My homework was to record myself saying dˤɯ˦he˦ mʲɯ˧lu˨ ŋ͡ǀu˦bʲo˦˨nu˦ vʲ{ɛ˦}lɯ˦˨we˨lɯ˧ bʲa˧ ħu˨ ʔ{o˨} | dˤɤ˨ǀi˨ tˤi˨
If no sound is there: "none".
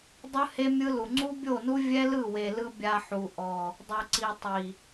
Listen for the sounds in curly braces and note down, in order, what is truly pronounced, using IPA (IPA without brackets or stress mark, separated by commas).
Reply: ɛ˦, ɔ˨